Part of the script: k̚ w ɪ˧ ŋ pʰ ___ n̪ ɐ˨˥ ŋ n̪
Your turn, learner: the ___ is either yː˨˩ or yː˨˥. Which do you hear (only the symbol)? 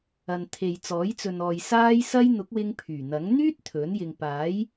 yː˨˩